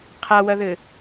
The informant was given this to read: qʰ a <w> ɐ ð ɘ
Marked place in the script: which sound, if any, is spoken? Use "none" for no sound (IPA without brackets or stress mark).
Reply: w